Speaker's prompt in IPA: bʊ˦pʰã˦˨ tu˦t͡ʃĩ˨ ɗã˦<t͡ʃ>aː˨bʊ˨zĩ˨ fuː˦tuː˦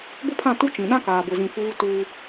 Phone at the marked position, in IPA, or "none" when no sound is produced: k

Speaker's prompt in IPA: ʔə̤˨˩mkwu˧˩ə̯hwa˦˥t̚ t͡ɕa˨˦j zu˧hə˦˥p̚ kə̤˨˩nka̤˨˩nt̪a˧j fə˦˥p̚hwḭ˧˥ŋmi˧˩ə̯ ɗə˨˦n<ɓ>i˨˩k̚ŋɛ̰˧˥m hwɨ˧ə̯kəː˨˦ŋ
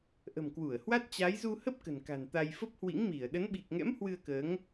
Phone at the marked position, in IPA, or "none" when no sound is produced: ɓ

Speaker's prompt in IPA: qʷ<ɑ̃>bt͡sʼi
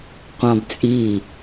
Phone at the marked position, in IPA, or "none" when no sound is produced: ɑ̃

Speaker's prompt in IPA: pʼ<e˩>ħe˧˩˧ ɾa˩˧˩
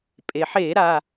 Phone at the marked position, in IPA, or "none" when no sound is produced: e˩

